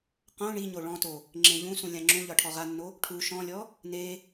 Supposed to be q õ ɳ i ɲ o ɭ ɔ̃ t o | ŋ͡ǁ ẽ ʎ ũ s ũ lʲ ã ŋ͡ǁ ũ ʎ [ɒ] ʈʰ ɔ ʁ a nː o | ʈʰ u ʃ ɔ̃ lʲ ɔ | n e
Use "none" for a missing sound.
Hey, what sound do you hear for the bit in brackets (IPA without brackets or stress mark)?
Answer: ɒ